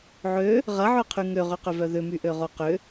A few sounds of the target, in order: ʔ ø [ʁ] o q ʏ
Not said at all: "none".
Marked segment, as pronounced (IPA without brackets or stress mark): ʁ